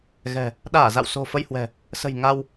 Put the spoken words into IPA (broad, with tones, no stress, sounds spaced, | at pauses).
ɣ ɛ̤˨˩ | ɗ aː˧˩ z a̰˧˨ w s o̤˨˩ f ə˧ j h w ɛ̤˨˩ | s ə̤˨˩ j ŋ a˧ w